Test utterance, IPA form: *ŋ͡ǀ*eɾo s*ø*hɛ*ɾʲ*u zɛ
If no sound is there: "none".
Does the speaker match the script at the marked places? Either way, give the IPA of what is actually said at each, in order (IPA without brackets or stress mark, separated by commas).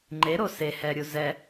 ŋ͡ǃ, e, ɾʲ